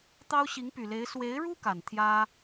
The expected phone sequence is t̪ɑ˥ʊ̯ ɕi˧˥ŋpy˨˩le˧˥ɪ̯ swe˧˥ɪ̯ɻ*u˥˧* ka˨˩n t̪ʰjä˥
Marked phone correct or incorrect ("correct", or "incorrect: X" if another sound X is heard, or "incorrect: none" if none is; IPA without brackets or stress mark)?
incorrect: u˥